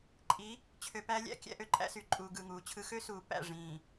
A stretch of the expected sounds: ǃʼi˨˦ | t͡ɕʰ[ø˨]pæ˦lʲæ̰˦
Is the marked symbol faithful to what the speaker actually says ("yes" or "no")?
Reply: yes